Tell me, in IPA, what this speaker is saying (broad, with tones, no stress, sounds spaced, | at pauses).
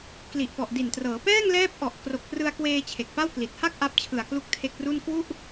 k l i˨˩ ʔ p ɔ˨˩ ʔ d i˨˩ n t r ɤː˩˦ p ɛː˥˩ ŋ l ɛː˦˥ p̚ ʔ ɔ˨˩ ʔ k r o˨˩ k̚ p r ɯ˧ a̯ k w eː˧ t͡ɕʰ e˨˩ k̚ p a˥˩ w k l i˨˩ t̚ h a˥˩ k̚ ʔ a˦˥ p̚ t͡ɕʰ ɯ˨˩ a̯ k l u˦˥ k̚ tʰ e˦˥ k̚ r u˥˩ n k w u˥˩ ʔ